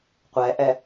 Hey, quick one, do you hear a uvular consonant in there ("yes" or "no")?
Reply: yes